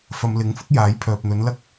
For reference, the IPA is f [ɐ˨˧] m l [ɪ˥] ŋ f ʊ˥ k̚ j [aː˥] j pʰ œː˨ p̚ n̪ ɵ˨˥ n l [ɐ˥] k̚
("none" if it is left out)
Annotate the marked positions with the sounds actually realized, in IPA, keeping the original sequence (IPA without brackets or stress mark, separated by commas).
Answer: ɐ˨˧, ɪ˨˥, aː˨˥, ɐ˥